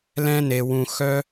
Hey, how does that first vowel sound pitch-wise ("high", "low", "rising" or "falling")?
high